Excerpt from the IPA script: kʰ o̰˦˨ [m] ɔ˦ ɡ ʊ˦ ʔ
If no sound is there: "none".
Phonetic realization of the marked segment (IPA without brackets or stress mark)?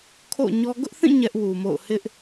ɲ